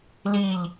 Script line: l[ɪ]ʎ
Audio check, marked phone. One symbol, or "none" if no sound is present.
i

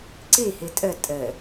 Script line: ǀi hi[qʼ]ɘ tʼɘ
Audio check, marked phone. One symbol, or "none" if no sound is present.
tʼ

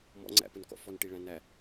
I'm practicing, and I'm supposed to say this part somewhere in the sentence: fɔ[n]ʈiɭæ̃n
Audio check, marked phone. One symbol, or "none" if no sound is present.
n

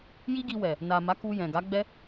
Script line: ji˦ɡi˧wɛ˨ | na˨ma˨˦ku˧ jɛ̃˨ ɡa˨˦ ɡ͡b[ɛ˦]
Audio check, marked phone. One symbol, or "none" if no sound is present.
ɛ˦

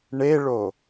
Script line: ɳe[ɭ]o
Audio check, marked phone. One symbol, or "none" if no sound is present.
ɭ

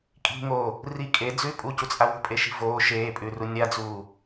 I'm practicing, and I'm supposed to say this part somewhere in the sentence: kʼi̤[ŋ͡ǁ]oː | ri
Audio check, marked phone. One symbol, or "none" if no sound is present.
ŋ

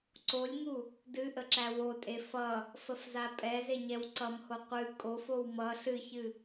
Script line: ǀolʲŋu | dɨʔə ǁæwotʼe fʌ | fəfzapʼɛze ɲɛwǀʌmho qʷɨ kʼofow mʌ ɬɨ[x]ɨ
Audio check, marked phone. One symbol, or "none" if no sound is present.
ç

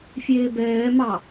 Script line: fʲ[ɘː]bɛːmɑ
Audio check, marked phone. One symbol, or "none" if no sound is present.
eː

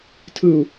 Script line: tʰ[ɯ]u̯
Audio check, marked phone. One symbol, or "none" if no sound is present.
ɯ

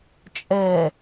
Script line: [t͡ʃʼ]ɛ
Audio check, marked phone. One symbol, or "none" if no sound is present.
t͡ʃʼ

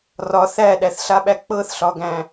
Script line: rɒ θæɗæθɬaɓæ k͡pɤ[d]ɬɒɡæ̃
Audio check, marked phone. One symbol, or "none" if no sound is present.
θ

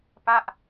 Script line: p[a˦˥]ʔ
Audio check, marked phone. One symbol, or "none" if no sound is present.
a˥˩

